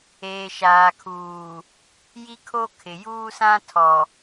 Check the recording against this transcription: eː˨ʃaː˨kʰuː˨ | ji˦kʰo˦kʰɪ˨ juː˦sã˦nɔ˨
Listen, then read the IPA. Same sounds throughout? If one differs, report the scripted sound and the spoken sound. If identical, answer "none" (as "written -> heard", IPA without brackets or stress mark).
n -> tʰ